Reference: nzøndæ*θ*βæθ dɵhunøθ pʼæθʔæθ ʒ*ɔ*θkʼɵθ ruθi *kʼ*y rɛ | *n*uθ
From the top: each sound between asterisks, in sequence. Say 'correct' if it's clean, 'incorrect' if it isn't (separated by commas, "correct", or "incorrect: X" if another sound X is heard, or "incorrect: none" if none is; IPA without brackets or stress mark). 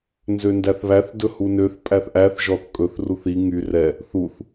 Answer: correct, correct, incorrect: ŋ, incorrect: θ